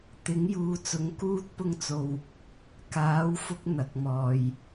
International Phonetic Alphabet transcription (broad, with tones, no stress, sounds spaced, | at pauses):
t̪ ɪ˨˥ ŋ j uː˨˧ t͡s ʊ˨˥ ŋ k uː˥ t̚ p ʊ˥ ŋ t͡s o˧ w | k aː˨˥ w f ʊ˧ k̚ n̪ ɐ˨ k̚ m ɔː˨ j